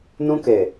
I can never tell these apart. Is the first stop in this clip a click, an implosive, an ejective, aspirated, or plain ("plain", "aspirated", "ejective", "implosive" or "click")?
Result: plain